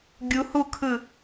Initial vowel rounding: rounded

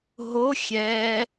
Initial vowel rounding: rounded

